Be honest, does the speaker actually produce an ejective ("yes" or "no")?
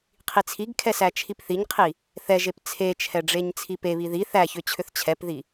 no